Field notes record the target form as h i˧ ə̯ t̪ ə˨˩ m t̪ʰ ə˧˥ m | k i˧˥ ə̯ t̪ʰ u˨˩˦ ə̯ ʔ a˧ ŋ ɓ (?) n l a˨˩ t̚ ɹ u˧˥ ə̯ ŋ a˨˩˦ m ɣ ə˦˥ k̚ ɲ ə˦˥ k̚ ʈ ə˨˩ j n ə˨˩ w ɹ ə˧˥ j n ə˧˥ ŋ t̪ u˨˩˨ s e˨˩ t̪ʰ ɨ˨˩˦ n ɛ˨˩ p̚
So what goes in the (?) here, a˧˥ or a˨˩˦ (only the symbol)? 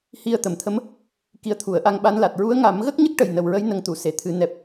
a˧˥